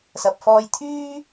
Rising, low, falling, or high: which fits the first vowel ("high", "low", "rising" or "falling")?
low